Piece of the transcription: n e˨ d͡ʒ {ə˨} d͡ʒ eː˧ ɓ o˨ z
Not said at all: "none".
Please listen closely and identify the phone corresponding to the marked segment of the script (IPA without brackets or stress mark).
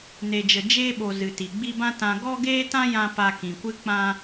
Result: ə˨